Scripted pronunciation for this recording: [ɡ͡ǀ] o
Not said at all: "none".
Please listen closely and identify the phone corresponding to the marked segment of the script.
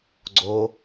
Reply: ɡ͡ǀ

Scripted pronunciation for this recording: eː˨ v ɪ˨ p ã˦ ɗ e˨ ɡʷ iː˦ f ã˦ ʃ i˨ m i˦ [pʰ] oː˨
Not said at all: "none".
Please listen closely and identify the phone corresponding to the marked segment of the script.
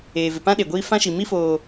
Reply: f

